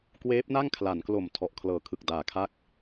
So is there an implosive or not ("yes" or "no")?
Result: no